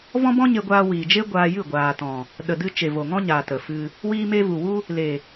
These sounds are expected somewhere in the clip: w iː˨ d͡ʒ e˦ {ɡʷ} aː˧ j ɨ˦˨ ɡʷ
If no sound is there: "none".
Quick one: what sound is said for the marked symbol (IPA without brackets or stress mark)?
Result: ɡʷ